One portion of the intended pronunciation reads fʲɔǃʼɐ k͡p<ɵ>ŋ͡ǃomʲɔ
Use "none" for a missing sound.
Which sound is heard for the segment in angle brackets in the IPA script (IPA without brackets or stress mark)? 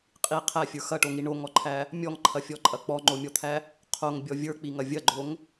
ɔ